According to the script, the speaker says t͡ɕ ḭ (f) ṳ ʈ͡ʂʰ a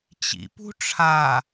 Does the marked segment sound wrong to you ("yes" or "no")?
yes